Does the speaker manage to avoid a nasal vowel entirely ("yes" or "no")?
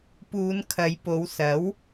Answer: yes